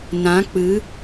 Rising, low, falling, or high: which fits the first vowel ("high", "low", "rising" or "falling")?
rising